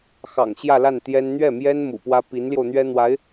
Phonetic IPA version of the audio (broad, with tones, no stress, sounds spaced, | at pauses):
x ɑ̰˨˩ ŋ ɕ j ä˥˧ l a˥˩ n t̪ j ɛ˥ n n̪ ɥ ɛ˥˩ m j ɛ˥ n m ṵ˨˩ p w ä˥ p i˧˥ n l j o˧ ʊ̯ n̪ ɥ ɛ˥ n̪ w a˧˥ ɪ̯